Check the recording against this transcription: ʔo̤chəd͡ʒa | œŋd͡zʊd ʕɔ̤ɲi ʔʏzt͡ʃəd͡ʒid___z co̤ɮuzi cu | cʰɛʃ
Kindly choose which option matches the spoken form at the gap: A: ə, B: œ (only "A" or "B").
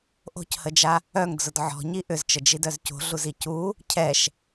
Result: B